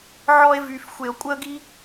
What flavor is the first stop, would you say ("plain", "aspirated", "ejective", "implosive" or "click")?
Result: ejective